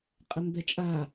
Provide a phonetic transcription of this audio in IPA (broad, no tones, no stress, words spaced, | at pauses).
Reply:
qʼəmd̪ɛt͡ʃʼa